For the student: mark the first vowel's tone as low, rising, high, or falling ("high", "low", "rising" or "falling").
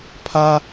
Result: high